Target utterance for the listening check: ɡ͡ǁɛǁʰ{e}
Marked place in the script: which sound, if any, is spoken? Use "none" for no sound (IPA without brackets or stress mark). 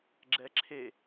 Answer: e